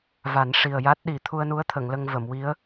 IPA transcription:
v a˨˩˦ n ʂ i˨˩ ə̯ j a˦˥ t̚ ɗ i˨˩˦ t̪ʰ u˧ ə̯ n u˧˥ ə̯ t̪ʰ ə˨˩˨ ŋ l ə˧ ŋ v ə˨˩˨ m w i˧˥ ə̯

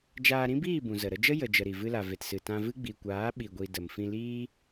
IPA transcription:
d͡ʒ aː˧ ɾ ĩ˦ b iː˦˨ b ũ˨ z ə˨ ɾ ə˧ d͡ʒ ə˦ j ə˨ d͡ʒ ə˨ ɾ i˨ v ɨ˧ l a˨ v e˨ t s ɨ˨ t ã˧ v ɨ˦ ɡ͡b i˨ kʷ aː˨˦ ɓ i˨ ɡʷ i˨ d ə˨ m f ĩ˧ l iː˦

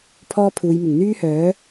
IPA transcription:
pʰ ɔː˥ pʰ uː˨˧ j m ɪ˨˩ ŋ n̪ yː˥ h œː˨˥

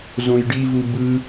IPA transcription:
z õ j ɖ i v u b ɯ

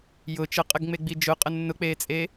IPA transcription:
j ʊ t͡ʃ ə qʼ ə ɡ ŋ͡m e ɡ͡b i d͡ʒ ʊ qʼ ə nː ʊ k͡p eː t͡sʼ e

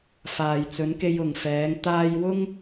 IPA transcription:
f aː˨ j t͡s ɵ˨˧ n k e˧ j ʊ˨ ŋ f ɛː˨˧ ŋ t̪ aː˧ j w ʊ˥ ŋ

